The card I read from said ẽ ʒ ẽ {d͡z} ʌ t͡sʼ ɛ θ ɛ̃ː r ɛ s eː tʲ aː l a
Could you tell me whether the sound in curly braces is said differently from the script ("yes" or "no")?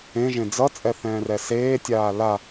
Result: no